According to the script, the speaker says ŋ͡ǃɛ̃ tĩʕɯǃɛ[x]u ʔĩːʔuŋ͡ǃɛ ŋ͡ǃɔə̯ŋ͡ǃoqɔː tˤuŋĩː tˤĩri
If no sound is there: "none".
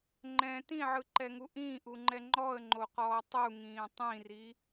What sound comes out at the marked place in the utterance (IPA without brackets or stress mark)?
ŋ